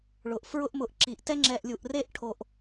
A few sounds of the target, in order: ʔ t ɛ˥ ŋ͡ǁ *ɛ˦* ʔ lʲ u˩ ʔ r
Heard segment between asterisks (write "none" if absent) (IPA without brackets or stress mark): ɛ˨